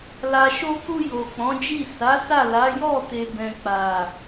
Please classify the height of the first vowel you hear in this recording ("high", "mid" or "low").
low